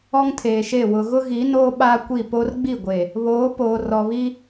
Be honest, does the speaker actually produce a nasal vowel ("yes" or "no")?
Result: no